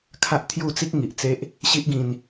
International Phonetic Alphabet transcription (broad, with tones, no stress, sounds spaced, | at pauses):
kʰ a˦ ʔ t̪ʰ j u˥˧ t͡s i˦ k̚ ŋ i˨ ʔ t͡s e˦ ʔ | ɕ i˦ ʔ ɡ ĩ˧ n